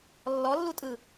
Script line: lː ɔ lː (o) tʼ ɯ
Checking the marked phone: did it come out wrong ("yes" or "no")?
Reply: yes